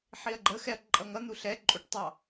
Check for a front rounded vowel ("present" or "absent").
absent